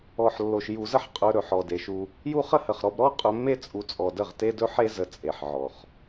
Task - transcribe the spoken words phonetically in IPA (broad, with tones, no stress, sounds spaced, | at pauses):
ɔ˨ ħ lː o˨ ʃ j u˨ z ə˦ ħ qʼ ɵ˧ ɾ ɵ˨ ħ ɔ˨ d e˨ ʃ u˧ | j u˦ χ ə˦ h ə˨ χ ɾ ɔ˧ b ɾ ɔ˦ qʼ ɵ˧ mː e˦ t͡sʼ u˨˦ t͡sʼ ɔ˨ d ə˦˨ ʁ t e˦ d ɵ˦ ħ e˦ z ə˧ t͡sʼ e˨ ħ ʕ ɔ˨ χ